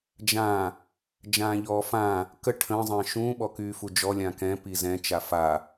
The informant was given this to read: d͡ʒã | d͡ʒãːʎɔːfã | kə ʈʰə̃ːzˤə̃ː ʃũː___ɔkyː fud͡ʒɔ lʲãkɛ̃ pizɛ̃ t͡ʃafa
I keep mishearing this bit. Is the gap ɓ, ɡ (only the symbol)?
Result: ɓ